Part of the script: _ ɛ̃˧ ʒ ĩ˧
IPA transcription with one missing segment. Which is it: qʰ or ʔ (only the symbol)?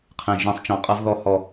qʰ